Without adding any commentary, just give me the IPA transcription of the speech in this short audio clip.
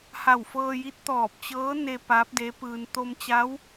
ha˧˩wfɤː˧ji˧˥t̚ t̪ɔː˧˩p̚t͡ɕɤː˧˥ne˧ pa˧˥p̚de˧˥pɯː˧n t̪o˧mt͡ɕa˧˥w

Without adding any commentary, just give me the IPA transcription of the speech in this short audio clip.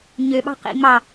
ɲøɓɑ̤ qḭ ŋ͡mɑ

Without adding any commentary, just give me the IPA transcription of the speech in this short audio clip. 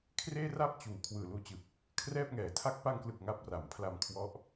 kʰreː˥˩ra˥˩p̚t͡ɕuː˩˦ kʰwɯː˨˩luː˧t͡ɕɯ˨˩k̚ | kʰrɛː˥˩p̚ŋɛː˩˦tʰa˥˩k̚ pa˧ŋklɯ˨˩k̚ ŋa˦˥p̚ra˨˩mpʰla˧m kʰwɔ˦˥ʔ

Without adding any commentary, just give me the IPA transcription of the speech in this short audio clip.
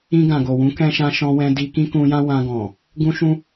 ĩ˧ɡã˨ɡo˨wũ˨˦ kɛ̃˦ʃã˦ ʃɔ̃˧wɛ̃˧di˧ kĩ˦kũ˧jã˦ wã˧ɡɔ̃˨ | ɡũ˦ʃũ˦

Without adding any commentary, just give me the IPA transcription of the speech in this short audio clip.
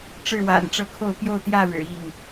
ʈ͡ʂɻ̩˥˨wa̰˨˩nʈ͡ʂɤ˦kʰo˥˨ʊ̯ pjo˥˨ʊ̯t̪jä˥˨ɻɻ̩˨˩ i˥˨ŋ

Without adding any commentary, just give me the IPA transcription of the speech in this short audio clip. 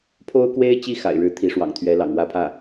pʰo˥ʊ̯kwe˥ɪ̯t͡ɕi˥˩ xa̰˨˩ɪ̯ɻɻ̩˥ t̪ʰi˧˥ʂwɑ̰˨˩ŋt̪ʰɥɛ˧˥ lɑ̰˨˩ŋwä˥˧pʰä˥˩

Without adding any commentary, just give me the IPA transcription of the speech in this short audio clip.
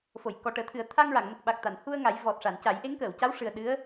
fo˨˩˨jkɔ˨˩ʈəː˨˩˦t̪ʰɨ˨˩˦ə̯ t̪ʰa˧ŋɹa˨˩˨ŋ mə˨˩k̚ɓa˨˩k̚ t̪a˨˩˨nhu˧ə̯ ŋa˨˩˦jvɔ˨˩t̚ʂa˨˩˨n ca˨˩˦jʔe˧˥ŋkəː˨˩˨w ca˧˥wʂɨ˨˩ə̯ ɗɨ˧˥ə̯

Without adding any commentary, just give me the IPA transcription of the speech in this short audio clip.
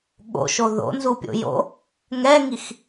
ɠo̰ʃo ðo̰nzupʲo̰ jo̰ | ŋɛŋix

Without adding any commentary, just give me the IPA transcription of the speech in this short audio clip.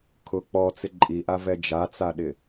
kʰʊ k͡pɔt͡sɪ ǃʼiʔa vɛd͡ʒat͡saɗɪ

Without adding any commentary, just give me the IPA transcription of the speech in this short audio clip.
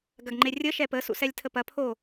ɡɐɡŋ͡ǃerʲə ʃɛpə sṵsɛlʲtʰəpɐ pʰo

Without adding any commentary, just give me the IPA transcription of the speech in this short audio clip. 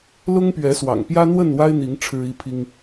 lʊ˦ŋpɥɛ˨˦swɑ̰˨˩ŋ pjä˦n̪wə˥˨nwa˦ɪ̯n̪i˨˦ŋ ʈ͡ʂʰɻ̩˦i˦pʰi˦ŋ

